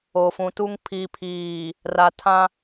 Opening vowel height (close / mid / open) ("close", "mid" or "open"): mid